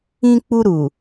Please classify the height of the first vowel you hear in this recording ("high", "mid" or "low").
high